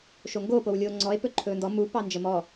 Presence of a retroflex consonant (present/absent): absent